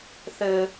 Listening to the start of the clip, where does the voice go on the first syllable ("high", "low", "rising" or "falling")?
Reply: high